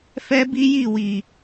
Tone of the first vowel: high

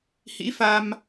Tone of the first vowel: rising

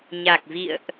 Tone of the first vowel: low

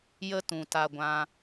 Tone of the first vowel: high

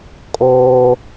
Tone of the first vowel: high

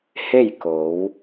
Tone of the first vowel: falling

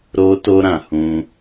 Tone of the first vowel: high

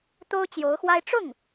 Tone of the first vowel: high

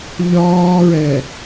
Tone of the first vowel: high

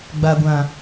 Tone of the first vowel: low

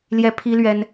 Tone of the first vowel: high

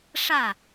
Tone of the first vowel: falling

